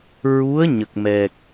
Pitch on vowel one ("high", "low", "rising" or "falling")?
rising